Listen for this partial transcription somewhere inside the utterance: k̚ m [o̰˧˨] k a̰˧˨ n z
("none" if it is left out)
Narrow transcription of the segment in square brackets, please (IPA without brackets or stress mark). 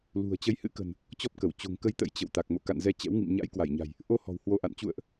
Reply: o̰˧˨